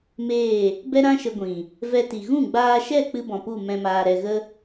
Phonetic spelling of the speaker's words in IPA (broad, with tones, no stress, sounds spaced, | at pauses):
m eː˦˨ | b ɛ˦ ɾ ã˦ ʃ ə˧ ɡʷ ĩ˨ | v ɛ˧ t i˨ ɣ ũ˦˨ ɡ͡b aː˧ ʃ ɛ˦˨ k͡p ɨ˦ b ɔ̃˨ p u˦˨ m ɛ̃˧ m aː˨ ɾ ɛ˨ ɣ ə˦